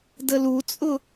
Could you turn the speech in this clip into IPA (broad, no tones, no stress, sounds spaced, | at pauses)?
d ə l u t͡sʼ ʊ